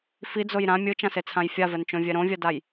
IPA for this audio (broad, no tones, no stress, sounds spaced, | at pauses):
f i d͡z o j ɾ ã mʲ ɯ t͡ʃ ã s e t͡sʰ ã j fʲ a v ɛ n t͡ʃ õ vʲ ɛ ɾ õ vʲ a d a j